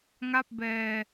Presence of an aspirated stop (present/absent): absent